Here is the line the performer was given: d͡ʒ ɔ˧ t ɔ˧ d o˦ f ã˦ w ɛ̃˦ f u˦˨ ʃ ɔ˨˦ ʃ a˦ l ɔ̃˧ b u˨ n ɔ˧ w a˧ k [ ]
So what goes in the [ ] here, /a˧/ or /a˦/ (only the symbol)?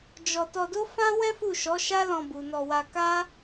a˦